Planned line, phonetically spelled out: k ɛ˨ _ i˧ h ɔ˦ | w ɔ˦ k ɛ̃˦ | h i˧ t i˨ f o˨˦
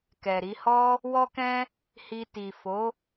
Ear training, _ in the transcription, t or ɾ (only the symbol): ɾ